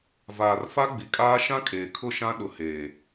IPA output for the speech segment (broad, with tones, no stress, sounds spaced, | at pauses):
v aː˨ r f a˦ ɡ͡b i˨ kʼ aː˦ ʃ ã˦ kʼ eː˨ kʰ ʊ˦˨ ʃ ã˦ ɗ ʊ˨ h eː˨